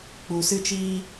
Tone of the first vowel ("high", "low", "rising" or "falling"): low